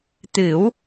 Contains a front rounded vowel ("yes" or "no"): no